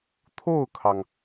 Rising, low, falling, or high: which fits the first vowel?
falling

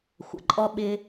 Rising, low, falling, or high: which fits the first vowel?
low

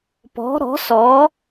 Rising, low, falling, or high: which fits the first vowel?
rising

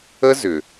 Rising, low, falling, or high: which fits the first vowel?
high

